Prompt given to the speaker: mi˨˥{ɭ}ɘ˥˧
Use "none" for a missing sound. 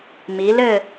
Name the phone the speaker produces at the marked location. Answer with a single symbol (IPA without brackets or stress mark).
l